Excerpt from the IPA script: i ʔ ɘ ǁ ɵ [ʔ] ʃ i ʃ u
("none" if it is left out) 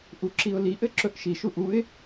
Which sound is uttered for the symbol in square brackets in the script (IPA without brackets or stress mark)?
ʔ